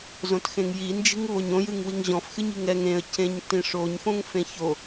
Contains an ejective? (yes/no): no